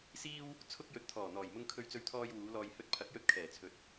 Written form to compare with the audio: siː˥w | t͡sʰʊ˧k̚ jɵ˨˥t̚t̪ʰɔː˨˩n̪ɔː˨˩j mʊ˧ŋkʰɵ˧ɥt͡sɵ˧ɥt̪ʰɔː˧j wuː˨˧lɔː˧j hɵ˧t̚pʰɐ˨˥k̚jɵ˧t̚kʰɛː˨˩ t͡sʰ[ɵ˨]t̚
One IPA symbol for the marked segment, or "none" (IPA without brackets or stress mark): ɵ˨